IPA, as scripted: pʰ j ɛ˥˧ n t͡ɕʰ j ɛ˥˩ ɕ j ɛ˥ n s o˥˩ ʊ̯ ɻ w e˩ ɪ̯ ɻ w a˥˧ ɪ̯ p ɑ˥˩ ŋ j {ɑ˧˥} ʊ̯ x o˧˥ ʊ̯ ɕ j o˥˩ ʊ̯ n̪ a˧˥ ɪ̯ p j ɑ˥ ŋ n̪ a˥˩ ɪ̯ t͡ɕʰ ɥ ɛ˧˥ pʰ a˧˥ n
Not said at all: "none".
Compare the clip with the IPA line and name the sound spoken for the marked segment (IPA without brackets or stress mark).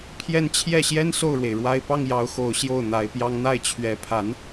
ɑ˧˥